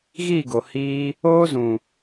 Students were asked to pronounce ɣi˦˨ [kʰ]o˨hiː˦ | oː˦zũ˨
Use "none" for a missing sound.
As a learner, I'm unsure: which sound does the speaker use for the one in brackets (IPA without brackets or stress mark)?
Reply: ɡ